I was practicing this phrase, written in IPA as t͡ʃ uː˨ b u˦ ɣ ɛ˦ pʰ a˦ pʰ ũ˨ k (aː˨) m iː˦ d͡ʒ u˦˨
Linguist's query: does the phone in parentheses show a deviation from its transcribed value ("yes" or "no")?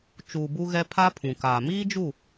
no